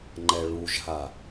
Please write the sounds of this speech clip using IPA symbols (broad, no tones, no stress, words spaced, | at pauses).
ŋ͡ǃɛɭuʒɦa